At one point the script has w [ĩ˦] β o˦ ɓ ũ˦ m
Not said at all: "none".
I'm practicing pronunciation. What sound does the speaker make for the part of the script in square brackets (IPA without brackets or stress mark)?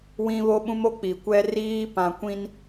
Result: ĩ˦